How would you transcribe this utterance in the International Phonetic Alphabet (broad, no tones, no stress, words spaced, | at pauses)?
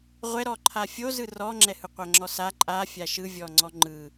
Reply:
ʁʷɛɾɔ ǃʰafʲo zɯrɔŋ͡ǁɛhɯ qʷaŋ͡ǁɔsa ǃʼa fʲaʃɯ vʲɔŋ͡ǀɔŋ͡ǃɯ